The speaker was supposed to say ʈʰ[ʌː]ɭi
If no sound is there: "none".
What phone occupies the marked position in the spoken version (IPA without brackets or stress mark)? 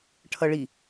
ʌ